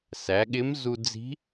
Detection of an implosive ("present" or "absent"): present